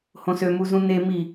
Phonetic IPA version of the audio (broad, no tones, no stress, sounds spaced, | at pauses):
h õ s ø m u z ũ n e m i